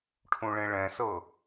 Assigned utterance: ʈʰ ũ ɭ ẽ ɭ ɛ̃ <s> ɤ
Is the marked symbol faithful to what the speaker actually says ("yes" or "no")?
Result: yes